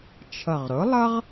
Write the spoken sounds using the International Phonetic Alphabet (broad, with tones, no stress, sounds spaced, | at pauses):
t͡ʃʰ ʌ˨˩ ʁ ɾ ʊ˩˥ lˠ ʌ˥ ʁ